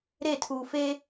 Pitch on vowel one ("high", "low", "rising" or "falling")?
falling